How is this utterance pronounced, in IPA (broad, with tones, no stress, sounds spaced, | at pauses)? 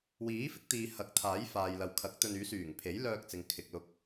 w iː˨˥ f ɪ˥ k̚ t̪ iː˨ h ɐ˨˥ k̚ t̪ʰ aː˨˥ j f aː˨ j l ɐ˨ w kʰ ɐ˨˥ k̚ t̪ ɵ˧ n yː˨˥ s yː˨˩ ŋ pʰ e˨˥ j l œː˧ k̚ t͡s ɪ˨ ŋ kʰ ɪ˨ k̚ l ʊ˧ k̚